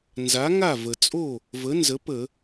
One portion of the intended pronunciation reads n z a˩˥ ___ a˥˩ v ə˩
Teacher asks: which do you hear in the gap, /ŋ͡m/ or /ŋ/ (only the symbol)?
ŋ